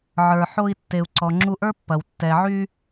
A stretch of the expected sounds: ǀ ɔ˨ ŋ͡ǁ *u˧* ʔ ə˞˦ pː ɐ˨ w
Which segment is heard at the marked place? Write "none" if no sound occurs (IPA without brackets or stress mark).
u˧